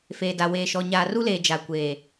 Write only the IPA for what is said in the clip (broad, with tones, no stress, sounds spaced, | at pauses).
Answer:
f eː˨ d a˨ w eː˨ ʃ ɔ˨ ɲ aː˨ r u˦ l eː˨ d͡ʒ a˨ kʷ eː˨